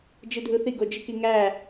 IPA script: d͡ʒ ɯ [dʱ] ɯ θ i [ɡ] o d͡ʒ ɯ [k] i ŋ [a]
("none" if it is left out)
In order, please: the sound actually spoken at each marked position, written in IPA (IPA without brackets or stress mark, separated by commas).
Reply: dʱ, ɡ, k, æ